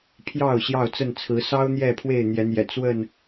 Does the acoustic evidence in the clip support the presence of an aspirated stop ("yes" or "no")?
yes